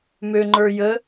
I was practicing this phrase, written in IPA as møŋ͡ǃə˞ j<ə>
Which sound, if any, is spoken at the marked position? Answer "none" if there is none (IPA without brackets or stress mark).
ə